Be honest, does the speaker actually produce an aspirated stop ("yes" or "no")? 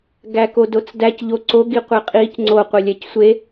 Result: no